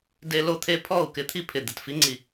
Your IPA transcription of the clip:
de˦lo˦t̪ʰe˦ pʰɔ˦˨u̯ kɪ˦t̪ʰi˦pʰɪ˨ d̪ɪ˨tfi˧ŋ͡ǀi˨

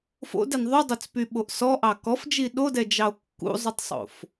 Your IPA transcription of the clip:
fo̰dɛn ðˤudˤot͡spyɓoʔ sɔʔɑ kɔfd͡ʒi ɗodɛd͡ʒɑo̯ kːṵzˤʉtˤsˤo̰f

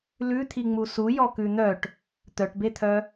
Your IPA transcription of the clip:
lʉt̪ʰi ŋ͡musu jɔkʉn̪œʈ | t̪œʈbet̪ʰœ

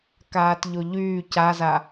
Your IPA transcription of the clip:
kaːtʎoʎyː caza

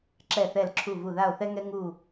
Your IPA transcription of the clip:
ǁɛ˧˩θɛ˧˩lǁʰu˧˩vu˧˩ ða˧˩o̯θɛ˧ŋɛ˧ ŋu˧˩

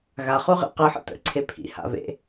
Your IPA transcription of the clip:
ɣaχuʁḛ qɯħə̰ tə̰ǀʰe pʰḭha̰vḛ

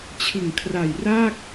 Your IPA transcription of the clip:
t͡ɕʰɯ˨˩ŋkʰra˨˩jraː˥˩k̚

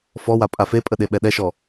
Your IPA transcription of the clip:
fɔwa pʼafepʼə ɗeɓɛɗɛʃɔ

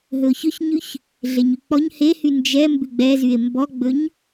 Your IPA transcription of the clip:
ɦɵo̯çɵçɲʉç | ɮeɲyk͡pɔɲ hehy nd͡ʒɛ mbʉɡ͡bɛzye̯ mbɔɡ͡bɵɲ

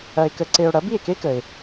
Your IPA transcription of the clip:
ɐ˧e̯kə˧ǀe˧o̯ ɽɐ˩˥bi˥˩e̯ke˥kə˩e̯

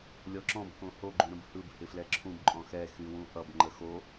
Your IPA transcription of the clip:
lʲɔǁɔ̃b kõho ɡ͡ǃũɾə̃bhɯb hɪflɛǁʰũb ǃʼɔ̃xɛ xywũʔʌb ŋ͡ǃəxo

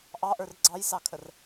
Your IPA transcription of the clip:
ʔɑʔə˞r ɡ͡ǀɑjsɑkʰər

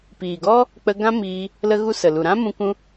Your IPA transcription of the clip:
piː˨ɡɔ˦ | k͡pə˧ɡã˦miː˧ | lə˧ɣu˧ sə˨ lu˨ɾã˦mũ˧ kũ˧

